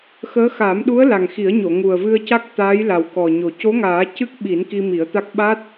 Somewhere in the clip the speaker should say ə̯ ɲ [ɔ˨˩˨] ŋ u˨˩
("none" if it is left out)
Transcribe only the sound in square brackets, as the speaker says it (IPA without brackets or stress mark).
o˨˩˨